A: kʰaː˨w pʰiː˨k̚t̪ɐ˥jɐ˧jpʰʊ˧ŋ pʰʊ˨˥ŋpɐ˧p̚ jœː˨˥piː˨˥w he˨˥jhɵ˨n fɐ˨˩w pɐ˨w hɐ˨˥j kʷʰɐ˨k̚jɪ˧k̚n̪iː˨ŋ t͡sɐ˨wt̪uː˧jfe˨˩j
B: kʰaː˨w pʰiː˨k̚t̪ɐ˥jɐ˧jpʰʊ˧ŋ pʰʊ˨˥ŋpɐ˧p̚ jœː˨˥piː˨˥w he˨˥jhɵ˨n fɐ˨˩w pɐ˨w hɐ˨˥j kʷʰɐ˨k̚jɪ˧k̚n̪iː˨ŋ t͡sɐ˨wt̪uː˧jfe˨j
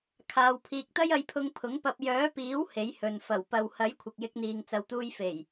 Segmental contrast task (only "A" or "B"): A